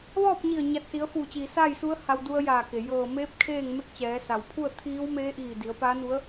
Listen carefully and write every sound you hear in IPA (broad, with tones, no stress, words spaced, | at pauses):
ʋɔː˥˨p̚ɲi˧˩ə̯ ɲa˧˩t̚si˩˧ə̯fuː˧˩t͡ɕiː˩ saː˥˨jsu˧˥ə̯ha˧w du˧ə̯jaː˧˩ke˩ jɤː˧˩meː˧˥p̚ kʰeː˥˨ŋme˥˨k̚t͡ɕɛː˩˧ sa˩wpʰu˥˨ə̯ t̪ʰiː˧˥w meː˧˥ʔiː˧˩ di˩˧ə̯paː˧˥nu˧˥ə̯